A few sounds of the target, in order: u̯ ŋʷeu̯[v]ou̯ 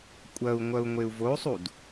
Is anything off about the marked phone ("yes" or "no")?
no